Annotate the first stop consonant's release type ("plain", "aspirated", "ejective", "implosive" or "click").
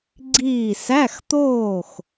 click